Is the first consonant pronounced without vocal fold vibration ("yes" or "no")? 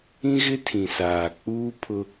no